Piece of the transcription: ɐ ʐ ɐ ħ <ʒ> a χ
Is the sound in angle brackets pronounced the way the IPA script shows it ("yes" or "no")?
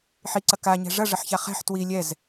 no